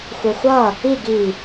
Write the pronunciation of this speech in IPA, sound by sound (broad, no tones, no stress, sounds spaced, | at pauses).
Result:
xʷ e xʷ ʌ | i ɡ i